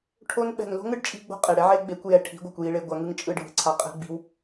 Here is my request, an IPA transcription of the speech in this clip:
ʈʰ o˧ n ɓ ɛ̤˨ n l o̤˦ ŋ ɯ˦ ɖ t͡ʃʼ i̤˦ ɡ͡b o̤˦ qʼ e˨ ɽ ɛ˦ ʕ e˦ ɡ͡b e˨˦ kʷ j ɛ˨ ʈʰ i̤˨˦ ɡʷ a˨ kʷ j i˨ ɭ e˨ ɡʷ a˧ ŋ ɯ˦ ŋ t͡ʃʼ ɯ˦˨ ɖʱ ɯ˨ ǀʰ a˧ qʼ ɛ̤˧ ɡ͡b i̤˧ w

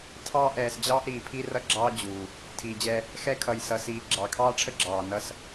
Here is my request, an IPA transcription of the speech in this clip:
tʰ ɑː˦ ʔ ɛː˨ s d͡ʑ ɑː˦ ʔ ɾ iː˨ pʰ i˦ r ʌ˦ ɡ͡ǁ ɑː˦ d͡ʑ uː˨ | tʰ iː˨ d͡ʑ ɛ˦ | x ɛ˦ kʰ ʌ˨ j s ʌ˨ s iː˨ ɡ͡ǁ ɑ˨ kʰ ɑː˦ ʈ͡ʂʰ ə˦ ɡ͡ǁ ɑː˨ n ʌ˦ s

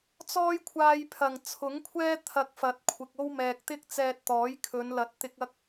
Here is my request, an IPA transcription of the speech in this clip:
t͡s ɔː˥ j kʷʰ aː˧ j pʰ ɐ˨˩ ŋ t͡sʰ ʊ˨˥ ŋ kʷʰ ɛː˥ t̪ʰ ɐ˧ k̚ f ɐ˨˥ t̚ kʷʰ ɪ˨ k̚ o˥ w m ɛː˨ k̚ t̪ ɪ˥ k̚ t͡s ɛː˧ t̚ t̪ ɔː˨˥ j kʰ ɵ˨˧ n l ɐ˨˥ t̚ t̪ ɪ˧ k̚ ɐ˥ k̚

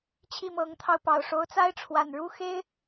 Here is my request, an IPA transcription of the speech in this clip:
t͡ɕʰ i˥˨ m ɤ˨˦ ŋ t̪ʰ ɑ˧ ʊ̯ p ɑ˨˩ ʊ̯ ʂ o˨˦ ʊ̯ t͡s a˦ ɪ̯ ʈ͡ʂʰ w a˨˩ n ɻ u˥˨ x e˦ ɪ̯

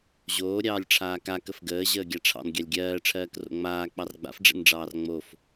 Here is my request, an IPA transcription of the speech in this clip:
ʑ oː ɾʲ ɑː lʲ ʈ͡ʂʰ aː k a k ə f ɡ əː ʑ əː ɡʲ a ʈ͡ʂʰ ɑ̰ n ɡʲ ɑ lʲ ɡʲ ɜː ʈ͡ʂʰ ɜː k r o̰ ŋ͡m aː k͡p ɑ r ɡ͡b a̰ f ɖ͡ʐ ɛ̰ n ɖ͡ʐ ɑː r ŋ͡m o f

